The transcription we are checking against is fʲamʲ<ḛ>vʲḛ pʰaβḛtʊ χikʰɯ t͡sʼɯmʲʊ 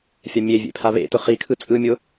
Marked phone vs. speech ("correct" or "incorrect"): incorrect